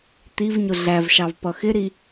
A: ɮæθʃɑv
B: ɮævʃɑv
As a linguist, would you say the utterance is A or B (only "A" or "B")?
B